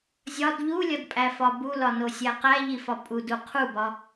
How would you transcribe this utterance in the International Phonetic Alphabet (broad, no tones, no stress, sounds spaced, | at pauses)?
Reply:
zʲ ɒ d ʎ u lʲ ɒ d pʼ æ f ɒ b u l ɒ n o sʲ æ q æ ʎ i f ɒ pʼ u d u qʰ u b ɒ